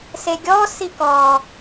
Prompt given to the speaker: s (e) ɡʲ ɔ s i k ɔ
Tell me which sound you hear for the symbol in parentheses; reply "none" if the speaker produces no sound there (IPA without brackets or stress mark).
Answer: e